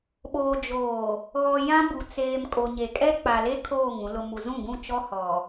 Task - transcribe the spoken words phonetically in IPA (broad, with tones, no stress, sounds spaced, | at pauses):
ɓ oː˨ d͡ʒ oː˨ | ɣ ɔ˨ j ã˦ b u˨ t͡s eː˨ m kʼ o˨ ɲ e˨ kʼ ɛ˦ k͡p a˨ l e˦ kʰ oː˦˨ ŋ ũ˨ l ʊ˨ m u˨ z ũ˦˨ ɡ ũ˦˨ t͡ʃ ɔ˦ h ɔ˨